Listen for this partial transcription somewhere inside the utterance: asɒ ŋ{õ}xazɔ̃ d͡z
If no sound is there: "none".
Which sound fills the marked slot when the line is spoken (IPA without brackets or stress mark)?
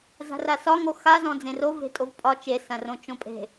o